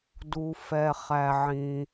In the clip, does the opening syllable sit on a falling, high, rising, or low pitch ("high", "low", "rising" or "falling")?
low